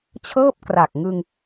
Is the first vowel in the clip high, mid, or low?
mid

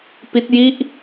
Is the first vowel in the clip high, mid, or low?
high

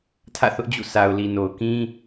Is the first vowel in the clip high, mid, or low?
low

